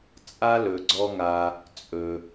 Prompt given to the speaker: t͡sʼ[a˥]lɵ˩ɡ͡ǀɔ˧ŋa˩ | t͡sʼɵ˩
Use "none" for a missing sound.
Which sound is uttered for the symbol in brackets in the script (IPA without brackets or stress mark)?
a˥